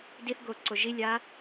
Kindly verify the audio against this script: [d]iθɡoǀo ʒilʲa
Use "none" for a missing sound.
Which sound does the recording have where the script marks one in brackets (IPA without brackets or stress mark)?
d